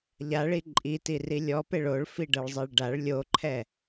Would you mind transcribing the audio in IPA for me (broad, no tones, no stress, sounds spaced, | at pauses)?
ʎ a ɭ i ǃʼ i t i r i lʲ ɔ p e ɭ o ɭ f i ɖ ɤ ɭ zˤ e ɭ ɖ a ɭ lʲ o ǃʰ ɛ